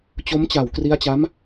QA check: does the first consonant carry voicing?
no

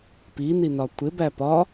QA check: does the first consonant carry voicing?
no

